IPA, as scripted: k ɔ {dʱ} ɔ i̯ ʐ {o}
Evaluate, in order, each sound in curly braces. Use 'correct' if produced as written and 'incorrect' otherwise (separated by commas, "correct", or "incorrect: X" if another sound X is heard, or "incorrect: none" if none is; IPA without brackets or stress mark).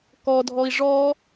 correct, incorrect: ɔ